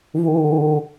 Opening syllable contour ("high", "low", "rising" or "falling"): low